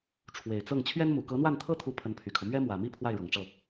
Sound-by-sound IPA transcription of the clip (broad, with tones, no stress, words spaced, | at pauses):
ʈ͡ʂʰwe˨˩ɪ̯t͡sɤ˥˩ŋ t͡ɕʰɥɛ˥nmu˨˩ kɤ˧˥n̪wa˥˩nt̪ʰɤ˥t̪ʰu˧˥ pʰə˧˥npʰy˨˩kʰɤ˦ mɥɛ˥mwä˨˩mi˥˧ pʰwa˥˩ɪ̯ɻɤ˨˩ŋʈ͡ʂɤ˥˩